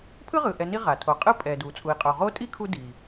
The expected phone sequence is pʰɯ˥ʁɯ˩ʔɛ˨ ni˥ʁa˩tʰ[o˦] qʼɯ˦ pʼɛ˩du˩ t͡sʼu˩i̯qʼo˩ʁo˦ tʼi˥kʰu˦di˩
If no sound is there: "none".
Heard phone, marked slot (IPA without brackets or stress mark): o˨